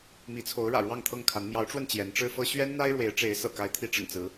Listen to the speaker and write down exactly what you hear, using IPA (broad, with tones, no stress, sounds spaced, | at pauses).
m i˨˦ t͡sʰ o˨˦ ʊ̯ ɻ ä̰˨˩ ɻ w ɑ˥˨ ŋ t̪ʰ ɤ˥˨ ŋ kʰ a˨˦ n m j ɑ˨˦ ʊ̯ ʈ͡ʂ w ə˧ n t͡ɕ j ɛ˨˦ n ʈ͡ʂ ɻ̩˦ f ɤ˦ ɕ ɥ ɛ˦ n n̪ a˦ ɪ̯ ɻ w e˨˦ ɪ̯ ʈ͡ʂ e˨˦ ɪ̯ s ɤ̰˨˩ k a˨˦ ɪ̯ t̪ʰ i˨˦ ʈ͡ʂ ə̰˨˩ n t͡s ɹ̩˨˦